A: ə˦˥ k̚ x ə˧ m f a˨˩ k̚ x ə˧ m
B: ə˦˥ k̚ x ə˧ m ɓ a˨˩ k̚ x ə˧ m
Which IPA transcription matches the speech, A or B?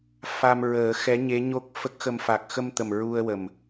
A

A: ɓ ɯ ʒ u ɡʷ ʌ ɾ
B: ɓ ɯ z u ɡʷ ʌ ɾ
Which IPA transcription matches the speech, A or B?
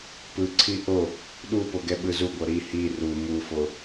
B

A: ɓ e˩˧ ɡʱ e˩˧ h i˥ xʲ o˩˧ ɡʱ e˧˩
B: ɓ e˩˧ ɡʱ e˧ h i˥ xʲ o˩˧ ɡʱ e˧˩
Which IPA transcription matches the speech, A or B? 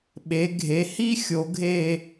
A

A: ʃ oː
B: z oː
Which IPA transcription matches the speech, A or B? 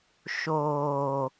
A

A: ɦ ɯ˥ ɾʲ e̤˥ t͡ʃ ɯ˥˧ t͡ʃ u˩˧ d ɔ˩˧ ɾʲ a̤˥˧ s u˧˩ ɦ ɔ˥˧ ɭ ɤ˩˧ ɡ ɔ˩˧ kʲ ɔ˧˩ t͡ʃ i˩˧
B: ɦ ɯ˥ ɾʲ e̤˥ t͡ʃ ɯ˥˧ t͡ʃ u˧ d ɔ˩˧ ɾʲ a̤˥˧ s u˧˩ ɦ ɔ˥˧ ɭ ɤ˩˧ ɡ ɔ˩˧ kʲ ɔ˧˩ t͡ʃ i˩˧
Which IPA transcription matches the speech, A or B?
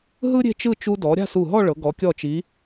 B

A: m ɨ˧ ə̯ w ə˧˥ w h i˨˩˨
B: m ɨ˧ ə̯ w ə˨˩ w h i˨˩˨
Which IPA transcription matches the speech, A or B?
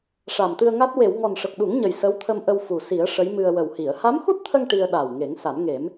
B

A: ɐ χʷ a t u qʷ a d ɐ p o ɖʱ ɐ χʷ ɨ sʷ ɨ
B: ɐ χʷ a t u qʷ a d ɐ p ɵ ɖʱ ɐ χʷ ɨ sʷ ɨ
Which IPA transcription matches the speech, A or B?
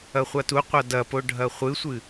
A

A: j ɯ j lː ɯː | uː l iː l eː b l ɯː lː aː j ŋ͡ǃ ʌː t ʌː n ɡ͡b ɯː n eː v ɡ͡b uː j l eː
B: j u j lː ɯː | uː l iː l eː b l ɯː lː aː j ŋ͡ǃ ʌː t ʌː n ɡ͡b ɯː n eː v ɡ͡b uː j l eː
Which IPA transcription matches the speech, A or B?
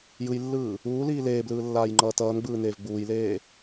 A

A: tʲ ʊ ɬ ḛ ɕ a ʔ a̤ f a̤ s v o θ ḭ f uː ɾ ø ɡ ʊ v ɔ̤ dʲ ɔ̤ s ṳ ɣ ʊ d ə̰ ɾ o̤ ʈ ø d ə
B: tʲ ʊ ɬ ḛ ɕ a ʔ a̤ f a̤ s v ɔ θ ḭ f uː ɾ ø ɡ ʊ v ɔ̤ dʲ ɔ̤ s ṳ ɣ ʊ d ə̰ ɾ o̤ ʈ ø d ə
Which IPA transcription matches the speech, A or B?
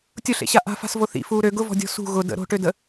A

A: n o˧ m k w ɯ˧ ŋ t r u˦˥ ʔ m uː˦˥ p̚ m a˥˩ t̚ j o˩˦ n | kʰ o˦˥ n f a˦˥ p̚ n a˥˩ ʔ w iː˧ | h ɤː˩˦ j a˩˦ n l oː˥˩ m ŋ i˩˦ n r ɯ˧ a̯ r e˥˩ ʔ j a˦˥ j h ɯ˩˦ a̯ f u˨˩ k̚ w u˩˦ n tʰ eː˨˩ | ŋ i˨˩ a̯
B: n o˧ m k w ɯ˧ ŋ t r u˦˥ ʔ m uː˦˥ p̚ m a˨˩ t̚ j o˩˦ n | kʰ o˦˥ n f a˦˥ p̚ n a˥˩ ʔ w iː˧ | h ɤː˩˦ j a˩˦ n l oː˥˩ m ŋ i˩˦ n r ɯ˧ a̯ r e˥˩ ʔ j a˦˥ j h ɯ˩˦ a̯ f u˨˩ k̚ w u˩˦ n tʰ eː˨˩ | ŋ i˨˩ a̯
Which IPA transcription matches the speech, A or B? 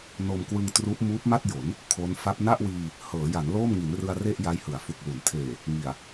A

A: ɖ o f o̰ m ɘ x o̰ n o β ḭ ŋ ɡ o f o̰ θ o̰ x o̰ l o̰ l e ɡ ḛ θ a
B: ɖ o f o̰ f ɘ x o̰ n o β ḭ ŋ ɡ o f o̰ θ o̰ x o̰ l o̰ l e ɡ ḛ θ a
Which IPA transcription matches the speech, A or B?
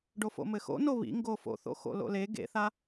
A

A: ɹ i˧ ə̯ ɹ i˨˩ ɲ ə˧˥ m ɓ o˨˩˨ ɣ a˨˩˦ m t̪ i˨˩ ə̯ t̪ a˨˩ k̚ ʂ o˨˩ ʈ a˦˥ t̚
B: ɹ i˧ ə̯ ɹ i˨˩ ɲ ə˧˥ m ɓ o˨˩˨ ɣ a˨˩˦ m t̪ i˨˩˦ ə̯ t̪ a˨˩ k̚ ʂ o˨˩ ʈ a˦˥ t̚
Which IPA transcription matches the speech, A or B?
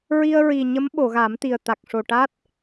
A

